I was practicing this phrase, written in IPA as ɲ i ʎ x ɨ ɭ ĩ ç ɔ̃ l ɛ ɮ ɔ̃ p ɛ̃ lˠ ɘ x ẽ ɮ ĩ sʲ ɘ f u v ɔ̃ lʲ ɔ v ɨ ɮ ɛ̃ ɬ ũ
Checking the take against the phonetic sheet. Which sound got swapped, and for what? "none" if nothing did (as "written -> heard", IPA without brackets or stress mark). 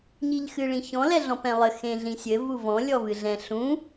f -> v